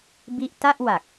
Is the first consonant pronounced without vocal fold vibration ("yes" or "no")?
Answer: no